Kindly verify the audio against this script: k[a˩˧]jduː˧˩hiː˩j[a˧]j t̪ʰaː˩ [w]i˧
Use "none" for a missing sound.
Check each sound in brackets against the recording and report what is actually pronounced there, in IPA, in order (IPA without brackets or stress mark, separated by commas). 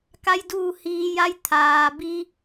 a˧, a˧, b